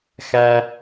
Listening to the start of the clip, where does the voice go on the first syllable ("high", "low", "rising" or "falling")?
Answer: high